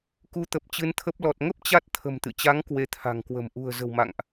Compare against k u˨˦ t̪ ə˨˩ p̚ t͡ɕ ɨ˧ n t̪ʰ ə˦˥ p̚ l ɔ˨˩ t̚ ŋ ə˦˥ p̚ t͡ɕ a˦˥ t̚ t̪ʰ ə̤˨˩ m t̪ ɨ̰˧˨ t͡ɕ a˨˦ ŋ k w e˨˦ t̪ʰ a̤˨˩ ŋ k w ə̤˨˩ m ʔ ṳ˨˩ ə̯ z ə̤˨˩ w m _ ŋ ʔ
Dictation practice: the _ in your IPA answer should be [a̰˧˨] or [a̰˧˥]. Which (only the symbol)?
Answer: a̰˧˨